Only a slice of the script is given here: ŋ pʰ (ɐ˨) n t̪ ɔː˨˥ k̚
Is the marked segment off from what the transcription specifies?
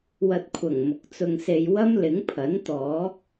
yes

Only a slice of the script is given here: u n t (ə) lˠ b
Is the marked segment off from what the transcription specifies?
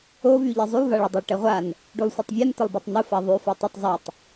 no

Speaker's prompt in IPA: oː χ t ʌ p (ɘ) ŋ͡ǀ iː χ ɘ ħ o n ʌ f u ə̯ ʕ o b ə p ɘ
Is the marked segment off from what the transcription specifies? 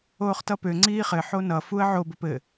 yes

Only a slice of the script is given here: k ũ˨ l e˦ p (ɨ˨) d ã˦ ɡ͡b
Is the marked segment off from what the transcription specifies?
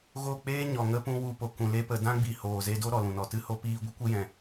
yes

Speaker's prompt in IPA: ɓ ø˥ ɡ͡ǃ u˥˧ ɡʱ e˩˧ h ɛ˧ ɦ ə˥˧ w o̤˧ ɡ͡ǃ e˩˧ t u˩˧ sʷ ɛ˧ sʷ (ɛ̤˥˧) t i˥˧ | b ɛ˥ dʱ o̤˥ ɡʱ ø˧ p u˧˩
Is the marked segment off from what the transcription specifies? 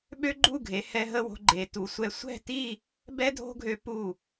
no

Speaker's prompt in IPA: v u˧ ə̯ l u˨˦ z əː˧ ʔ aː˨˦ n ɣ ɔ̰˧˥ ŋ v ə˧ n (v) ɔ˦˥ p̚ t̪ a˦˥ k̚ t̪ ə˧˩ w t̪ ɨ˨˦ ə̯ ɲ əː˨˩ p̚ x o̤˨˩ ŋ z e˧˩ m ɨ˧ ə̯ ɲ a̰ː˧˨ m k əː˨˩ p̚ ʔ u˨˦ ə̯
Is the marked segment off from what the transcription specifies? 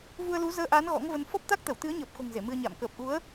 yes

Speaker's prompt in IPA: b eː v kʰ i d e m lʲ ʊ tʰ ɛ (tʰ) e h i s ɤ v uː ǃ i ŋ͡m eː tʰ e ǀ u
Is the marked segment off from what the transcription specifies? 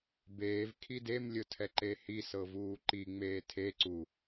yes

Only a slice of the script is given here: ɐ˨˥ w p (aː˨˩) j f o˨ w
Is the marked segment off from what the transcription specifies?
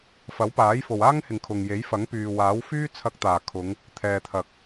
yes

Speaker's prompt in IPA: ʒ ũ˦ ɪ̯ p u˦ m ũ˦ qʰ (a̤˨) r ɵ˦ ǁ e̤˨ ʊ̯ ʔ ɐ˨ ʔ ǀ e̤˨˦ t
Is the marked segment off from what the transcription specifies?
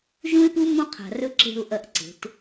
no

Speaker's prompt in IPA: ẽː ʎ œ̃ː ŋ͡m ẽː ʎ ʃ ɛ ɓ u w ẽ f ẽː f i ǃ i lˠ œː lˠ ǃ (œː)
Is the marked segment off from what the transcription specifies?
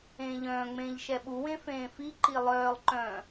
yes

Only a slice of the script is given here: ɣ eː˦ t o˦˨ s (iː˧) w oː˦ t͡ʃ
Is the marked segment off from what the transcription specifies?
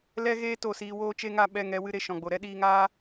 no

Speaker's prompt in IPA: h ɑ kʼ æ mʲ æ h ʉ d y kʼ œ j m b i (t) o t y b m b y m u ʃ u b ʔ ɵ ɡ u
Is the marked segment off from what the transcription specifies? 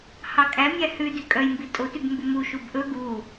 yes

